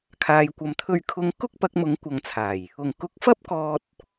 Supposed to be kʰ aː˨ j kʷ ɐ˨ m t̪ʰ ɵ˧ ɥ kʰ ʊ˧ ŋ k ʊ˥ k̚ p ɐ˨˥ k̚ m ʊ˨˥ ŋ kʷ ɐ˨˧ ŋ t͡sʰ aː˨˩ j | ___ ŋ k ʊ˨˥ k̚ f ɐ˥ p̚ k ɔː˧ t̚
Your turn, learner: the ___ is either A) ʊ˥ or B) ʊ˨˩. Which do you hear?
B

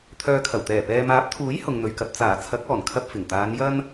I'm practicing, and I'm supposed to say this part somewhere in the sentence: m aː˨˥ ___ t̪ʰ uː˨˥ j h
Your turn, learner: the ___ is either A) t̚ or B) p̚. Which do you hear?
B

